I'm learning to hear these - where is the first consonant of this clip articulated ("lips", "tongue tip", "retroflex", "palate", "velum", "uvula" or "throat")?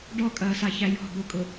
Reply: retroflex